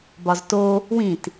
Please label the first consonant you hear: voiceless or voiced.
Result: voiced